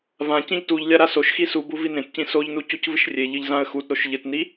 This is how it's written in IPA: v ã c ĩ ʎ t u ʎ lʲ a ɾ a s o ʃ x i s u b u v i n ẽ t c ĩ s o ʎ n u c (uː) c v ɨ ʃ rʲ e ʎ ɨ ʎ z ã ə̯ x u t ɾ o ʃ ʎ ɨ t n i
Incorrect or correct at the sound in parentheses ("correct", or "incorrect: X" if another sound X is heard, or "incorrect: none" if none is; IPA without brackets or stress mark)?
incorrect: u